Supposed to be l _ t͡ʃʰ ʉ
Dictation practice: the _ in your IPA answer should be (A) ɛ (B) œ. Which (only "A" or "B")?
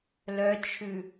B